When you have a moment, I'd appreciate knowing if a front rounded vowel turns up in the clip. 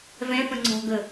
no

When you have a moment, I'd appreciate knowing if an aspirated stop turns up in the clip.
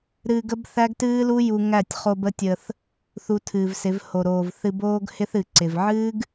yes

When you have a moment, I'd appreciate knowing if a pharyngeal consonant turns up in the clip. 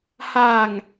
no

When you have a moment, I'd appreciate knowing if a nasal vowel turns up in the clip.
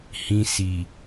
yes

